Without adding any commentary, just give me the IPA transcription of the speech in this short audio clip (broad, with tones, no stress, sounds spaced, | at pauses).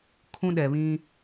kʰ ũ˦ ɗ ɛ˨ β ĩ˦